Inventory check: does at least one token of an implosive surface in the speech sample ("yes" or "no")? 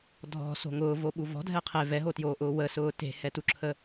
yes